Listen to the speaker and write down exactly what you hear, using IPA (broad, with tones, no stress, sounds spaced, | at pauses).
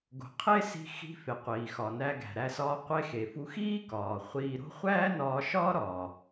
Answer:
ɡ o̤˩ qʰ e˥ s i̤˧ x i̤˧ f e˩ qʷ iː˩ x ɒ˩ n æ˧ ɡ æ̤˩ ɾ æ˧ s ɒː˧ qʷ e˧ x e˩ f u˧ x iː˥ k ɒː˩ χʷ iː˧ ɾ o̤˥ χʷ æː˥ n ɒː˧ ʃ ɒː˥ ɾ ɒ˩